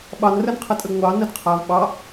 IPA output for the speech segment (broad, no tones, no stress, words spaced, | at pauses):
ɓɑnrənqʰətʼəɡ ŋʷɑ nədqʰav ɓɑ